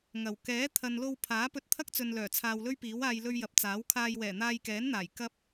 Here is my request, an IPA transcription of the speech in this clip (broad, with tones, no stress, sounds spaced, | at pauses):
ŋ ɐ˨˩ w k ɛː˨˥ t̪ʰ ɐ˨ n l o˧ w pʰ aː˨˥ p ɵ˧ t̚ t̪ʰ ɐ˥ k̚ t͡s ɵ˨ n l œː˨˩ t͡sʰ aː˨ w l ɵ˥ ɥ p iː˨˥ w aː˧ j l ɵ˧ ɥ j ɐ˨ p̚ t͡s aː˨˥ w kʰ aː˧ j w ɛː˨˩ n̪ aː˧ j k ɛː˨˥ n n̪ aː˨˩ j k ɐ˥ p̚